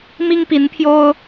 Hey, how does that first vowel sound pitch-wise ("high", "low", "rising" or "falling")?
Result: high